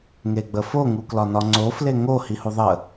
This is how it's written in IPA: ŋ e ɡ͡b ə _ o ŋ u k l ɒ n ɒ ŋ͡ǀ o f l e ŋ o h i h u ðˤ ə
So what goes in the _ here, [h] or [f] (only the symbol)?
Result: f